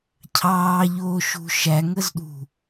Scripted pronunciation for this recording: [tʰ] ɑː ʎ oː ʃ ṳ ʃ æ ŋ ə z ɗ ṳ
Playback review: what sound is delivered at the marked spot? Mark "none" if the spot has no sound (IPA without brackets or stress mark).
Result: cʰ